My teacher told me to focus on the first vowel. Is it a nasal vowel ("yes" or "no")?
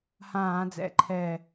yes